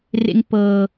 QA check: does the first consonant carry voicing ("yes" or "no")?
yes